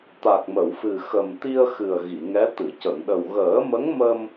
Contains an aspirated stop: no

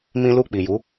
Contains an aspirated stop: no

